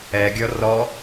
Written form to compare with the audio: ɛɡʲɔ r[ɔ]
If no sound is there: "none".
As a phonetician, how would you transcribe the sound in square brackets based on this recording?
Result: ɔ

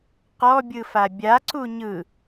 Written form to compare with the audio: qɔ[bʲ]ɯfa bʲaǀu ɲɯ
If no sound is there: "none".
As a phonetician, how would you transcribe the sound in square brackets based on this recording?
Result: bʲ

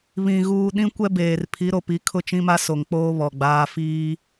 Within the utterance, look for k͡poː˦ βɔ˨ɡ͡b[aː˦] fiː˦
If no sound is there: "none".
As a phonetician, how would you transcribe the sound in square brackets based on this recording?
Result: aː˦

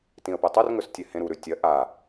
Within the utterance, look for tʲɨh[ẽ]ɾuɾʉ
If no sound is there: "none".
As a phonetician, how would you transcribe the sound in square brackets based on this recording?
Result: ẽ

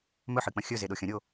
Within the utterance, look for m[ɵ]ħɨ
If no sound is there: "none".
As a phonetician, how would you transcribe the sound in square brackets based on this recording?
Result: ɵ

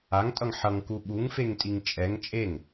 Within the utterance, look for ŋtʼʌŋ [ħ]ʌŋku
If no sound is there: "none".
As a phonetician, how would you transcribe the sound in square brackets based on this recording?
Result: ħ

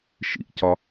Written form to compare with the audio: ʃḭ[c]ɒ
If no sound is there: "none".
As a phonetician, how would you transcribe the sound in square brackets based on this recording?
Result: c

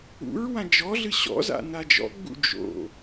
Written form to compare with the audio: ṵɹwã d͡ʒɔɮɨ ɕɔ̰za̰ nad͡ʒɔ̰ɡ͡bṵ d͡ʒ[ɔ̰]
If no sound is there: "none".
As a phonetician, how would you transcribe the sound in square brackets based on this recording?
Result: o̰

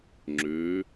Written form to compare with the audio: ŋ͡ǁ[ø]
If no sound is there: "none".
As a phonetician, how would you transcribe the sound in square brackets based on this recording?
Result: ø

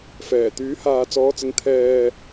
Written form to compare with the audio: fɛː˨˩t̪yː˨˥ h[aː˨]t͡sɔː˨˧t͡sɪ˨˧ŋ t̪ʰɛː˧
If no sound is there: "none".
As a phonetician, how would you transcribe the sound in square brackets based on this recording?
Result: aː˨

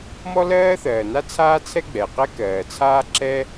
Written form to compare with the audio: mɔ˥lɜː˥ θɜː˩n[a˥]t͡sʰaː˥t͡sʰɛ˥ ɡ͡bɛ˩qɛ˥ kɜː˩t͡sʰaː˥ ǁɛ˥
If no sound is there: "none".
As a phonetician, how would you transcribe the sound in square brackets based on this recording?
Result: a˥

